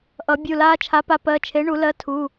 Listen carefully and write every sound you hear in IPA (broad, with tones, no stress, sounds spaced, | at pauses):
ʔ ʌ˨˩˦ bʲ u˩˧˩ l aː˦ t͡ʃʰ a˨˥ p a˨˥ p ɜ˩˧˩ t͡ʃʰ e˨˥ ɳ u˨˩˦ l ɜ˨˥ tʰ u˩˧˩